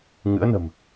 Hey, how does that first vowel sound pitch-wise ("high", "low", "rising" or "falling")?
rising